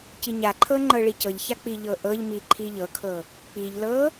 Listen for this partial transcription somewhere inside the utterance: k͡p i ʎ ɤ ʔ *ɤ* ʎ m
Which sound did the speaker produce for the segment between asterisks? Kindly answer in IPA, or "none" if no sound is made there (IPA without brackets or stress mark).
ɤ